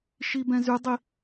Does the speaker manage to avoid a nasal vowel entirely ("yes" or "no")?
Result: no